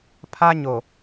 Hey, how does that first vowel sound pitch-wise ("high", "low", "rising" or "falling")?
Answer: high